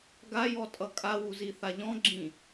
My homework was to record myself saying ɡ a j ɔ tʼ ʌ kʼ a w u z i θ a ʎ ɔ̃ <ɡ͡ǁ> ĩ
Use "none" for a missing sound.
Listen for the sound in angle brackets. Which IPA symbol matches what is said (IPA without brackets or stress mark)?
ɡ͡ǁ